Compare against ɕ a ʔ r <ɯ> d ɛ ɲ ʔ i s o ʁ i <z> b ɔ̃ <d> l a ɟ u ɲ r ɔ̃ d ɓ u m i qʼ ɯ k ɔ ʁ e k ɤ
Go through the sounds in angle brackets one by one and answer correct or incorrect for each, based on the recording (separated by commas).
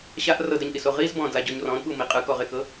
incorrect, correct, correct